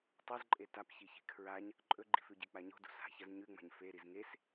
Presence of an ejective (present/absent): present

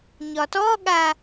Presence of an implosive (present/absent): present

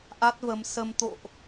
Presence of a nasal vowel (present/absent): absent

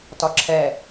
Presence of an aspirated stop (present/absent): present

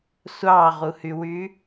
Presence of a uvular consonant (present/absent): present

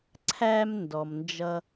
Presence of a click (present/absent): present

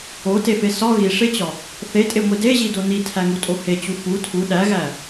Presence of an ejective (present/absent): present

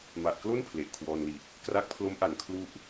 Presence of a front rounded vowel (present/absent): absent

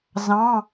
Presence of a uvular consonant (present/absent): absent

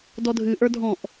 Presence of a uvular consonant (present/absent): absent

